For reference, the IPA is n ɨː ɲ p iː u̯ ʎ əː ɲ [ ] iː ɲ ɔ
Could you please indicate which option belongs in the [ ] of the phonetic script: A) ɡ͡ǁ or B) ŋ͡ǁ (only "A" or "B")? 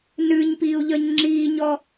B